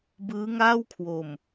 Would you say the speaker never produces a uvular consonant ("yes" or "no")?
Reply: yes